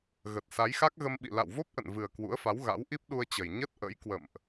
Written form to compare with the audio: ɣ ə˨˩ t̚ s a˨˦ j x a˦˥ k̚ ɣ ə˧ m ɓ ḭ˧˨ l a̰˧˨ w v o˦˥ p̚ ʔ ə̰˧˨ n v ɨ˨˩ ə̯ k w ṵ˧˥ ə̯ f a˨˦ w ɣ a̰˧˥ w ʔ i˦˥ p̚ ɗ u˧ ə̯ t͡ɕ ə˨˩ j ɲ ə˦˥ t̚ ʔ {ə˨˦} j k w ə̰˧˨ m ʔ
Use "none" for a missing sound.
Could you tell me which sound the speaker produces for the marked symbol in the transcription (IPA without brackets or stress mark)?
ə̰˧˥